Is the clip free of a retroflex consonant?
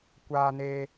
yes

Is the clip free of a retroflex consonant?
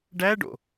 no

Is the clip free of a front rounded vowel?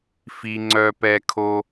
no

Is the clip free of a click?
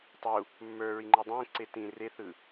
no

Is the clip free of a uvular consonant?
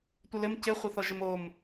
no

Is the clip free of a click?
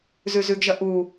yes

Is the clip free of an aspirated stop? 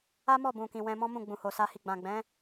yes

